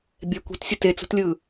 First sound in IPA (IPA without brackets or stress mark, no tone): bʲ